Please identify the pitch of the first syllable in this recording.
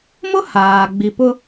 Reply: high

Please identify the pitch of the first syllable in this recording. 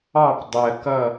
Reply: falling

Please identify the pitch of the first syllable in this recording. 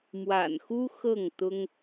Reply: low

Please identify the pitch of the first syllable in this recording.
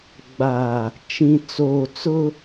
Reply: low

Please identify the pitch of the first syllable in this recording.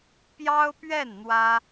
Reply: high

